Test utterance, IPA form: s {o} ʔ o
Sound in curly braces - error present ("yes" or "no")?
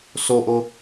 no